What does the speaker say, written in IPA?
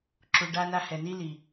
ǁ u˨ ɖ a˦ n a˦ h ɛ˨ n i˥ l i˨

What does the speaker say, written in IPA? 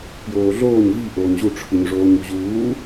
p j oː ɮ oː ɲ v i ʔ oː ɲ ʑ u ʈ͡ʂʰ ɯ ɲ ʐ oː ɲ u ʑ uː

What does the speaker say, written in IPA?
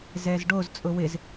z ɛ z ɖ o z t͡sʼ ʊ w ɪ z

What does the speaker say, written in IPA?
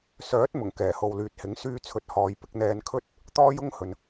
s œː˨˥ t̚ m ʊ˨˩ ŋ k ɛː˨˩ h o˨ w l yː˨ t̚ h ɪ˨˥ ŋ s yː˧ t͡sʰ ɵ˨ t̚ h ɔː˨˧ j p ɪ˧ k̚ n̪ ɛː˧ n kʰ ɵ˥ t̚ | t̪ ɔː˥ j ʊ˥ ŋ h ɵ˨ n

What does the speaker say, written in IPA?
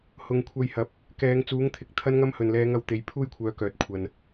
h ʊ˨ ŋ kʷʰ ɐ˧ j h ɐ˨˥ p̚ | k ɛː˨˧ ŋ t͡s uː˨˥ ŋ t̪ʰ ɪ˨ k̚ t̪ʰ ɐ˥ n ŋ ɐ˥ m h ɵ˨˩ n l ɛː˨˧ ŋ ɐ˨ w t̪ e˨˧ j pʰ uː˥ j kʷʰ œː˨˥ k œː˨ t̚ kʷʰ ɐ˨ n

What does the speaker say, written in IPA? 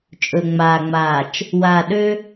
t͡ʃʼ ɵ˨ ŋ͡m aː˨ ŋ͡m aː˨ t͡ʃ | w aː˨ ɗ ø˦

